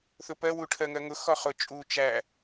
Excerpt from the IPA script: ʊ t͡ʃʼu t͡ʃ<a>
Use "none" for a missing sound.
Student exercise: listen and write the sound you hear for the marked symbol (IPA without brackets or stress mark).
æ